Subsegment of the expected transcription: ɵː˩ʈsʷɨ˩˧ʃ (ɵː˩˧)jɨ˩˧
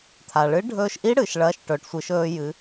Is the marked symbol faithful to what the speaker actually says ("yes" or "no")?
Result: no